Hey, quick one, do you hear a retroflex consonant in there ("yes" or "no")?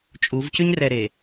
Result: no